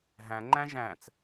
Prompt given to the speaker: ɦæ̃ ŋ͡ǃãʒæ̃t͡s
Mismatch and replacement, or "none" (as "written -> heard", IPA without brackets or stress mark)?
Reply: ã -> æ̃